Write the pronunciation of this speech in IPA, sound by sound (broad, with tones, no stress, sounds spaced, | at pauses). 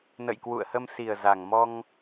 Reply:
n ə̰˧˨ j k w ṵ˧˨ ə̯ h ə˧ m s i˨˩ ə̯ z a˨˩ ŋ m ɔ˧ ŋ